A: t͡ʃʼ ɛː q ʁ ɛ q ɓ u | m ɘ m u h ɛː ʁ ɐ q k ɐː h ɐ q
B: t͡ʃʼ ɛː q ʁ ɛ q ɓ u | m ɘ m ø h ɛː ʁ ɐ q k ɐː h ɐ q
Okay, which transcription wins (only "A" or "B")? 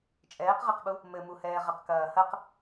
A